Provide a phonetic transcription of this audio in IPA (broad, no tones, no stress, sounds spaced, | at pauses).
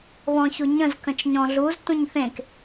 β ɔ̃ ç u ɲ ə̃ z k ə̃ t͡ʃ ɲ ɔ̃ ɮ u z t ũ ɲ θ ẽ k